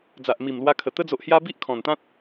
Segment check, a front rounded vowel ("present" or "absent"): absent